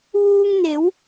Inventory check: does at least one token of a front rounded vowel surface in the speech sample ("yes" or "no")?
no